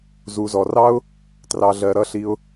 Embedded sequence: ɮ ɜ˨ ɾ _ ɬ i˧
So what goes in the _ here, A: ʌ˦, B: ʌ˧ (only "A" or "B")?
B